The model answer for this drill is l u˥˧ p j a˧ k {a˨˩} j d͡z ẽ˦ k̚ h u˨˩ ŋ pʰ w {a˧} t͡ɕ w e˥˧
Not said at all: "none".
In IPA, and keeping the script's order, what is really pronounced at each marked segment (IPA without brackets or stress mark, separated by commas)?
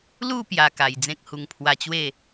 a˨˩, a˧